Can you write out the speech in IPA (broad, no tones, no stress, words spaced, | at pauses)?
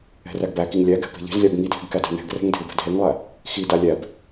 ɛ̤ræɡbækiŋ lʲæ ɡɛ̤pe̤ʎe̤zlʲab ŋidʱe̤ɡ kædæ̤nɛ̤ɡrɛ̤ŋ dʱebæ̤dɦeŋlˠæ | xida lʲæb